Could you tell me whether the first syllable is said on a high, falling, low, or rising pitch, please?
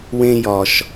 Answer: high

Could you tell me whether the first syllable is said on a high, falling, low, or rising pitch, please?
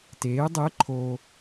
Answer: rising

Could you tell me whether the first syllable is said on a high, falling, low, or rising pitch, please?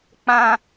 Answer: high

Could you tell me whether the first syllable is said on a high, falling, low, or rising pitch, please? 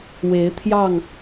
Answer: rising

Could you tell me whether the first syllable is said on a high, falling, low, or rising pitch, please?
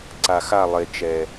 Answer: low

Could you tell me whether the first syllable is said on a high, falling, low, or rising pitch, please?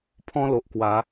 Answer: high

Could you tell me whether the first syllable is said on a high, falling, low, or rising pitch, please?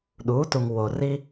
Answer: rising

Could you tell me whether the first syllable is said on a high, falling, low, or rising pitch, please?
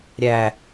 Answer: low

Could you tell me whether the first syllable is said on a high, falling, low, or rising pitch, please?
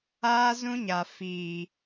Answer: high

